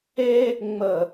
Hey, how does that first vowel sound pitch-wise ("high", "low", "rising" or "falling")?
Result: high